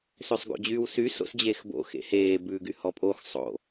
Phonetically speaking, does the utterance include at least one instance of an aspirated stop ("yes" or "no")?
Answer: no